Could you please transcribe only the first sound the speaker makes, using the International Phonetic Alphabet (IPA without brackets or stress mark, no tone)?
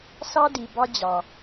s